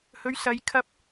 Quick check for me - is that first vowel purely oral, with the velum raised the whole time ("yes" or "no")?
yes